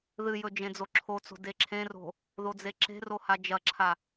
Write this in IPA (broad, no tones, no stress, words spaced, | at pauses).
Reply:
ðɨjɵ d͡ʒẽd͡zoǁʰot͡so̤ deǁʰẽro̤ | ðod͡zeǁe̤ro had͡ʒɐǁʰa